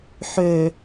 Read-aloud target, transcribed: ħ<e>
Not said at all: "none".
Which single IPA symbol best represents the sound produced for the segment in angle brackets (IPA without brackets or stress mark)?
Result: ø